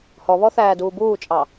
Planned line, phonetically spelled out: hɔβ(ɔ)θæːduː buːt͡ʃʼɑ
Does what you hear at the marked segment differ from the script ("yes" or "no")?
no